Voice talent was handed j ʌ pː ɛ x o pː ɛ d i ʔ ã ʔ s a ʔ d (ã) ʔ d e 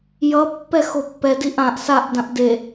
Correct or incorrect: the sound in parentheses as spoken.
correct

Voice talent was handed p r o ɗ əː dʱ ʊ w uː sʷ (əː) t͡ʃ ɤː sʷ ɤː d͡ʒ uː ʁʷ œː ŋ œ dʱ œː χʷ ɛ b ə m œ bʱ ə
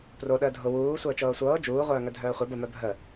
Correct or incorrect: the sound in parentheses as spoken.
correct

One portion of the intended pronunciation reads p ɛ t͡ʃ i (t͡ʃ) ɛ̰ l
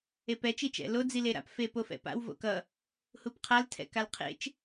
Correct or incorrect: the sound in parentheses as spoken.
correct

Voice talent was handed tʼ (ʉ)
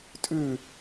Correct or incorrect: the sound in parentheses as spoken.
correct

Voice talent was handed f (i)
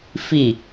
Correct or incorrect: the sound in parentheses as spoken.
correct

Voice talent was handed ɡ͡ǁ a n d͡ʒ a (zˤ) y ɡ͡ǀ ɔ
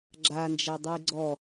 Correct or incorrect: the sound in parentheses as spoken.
incorrect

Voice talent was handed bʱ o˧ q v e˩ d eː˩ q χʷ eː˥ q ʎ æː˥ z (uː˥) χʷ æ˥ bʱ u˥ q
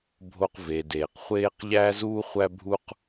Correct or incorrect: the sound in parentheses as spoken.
correct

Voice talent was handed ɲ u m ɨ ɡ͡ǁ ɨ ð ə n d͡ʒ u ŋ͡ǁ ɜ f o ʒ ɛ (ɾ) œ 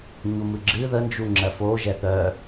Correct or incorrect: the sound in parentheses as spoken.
incorrect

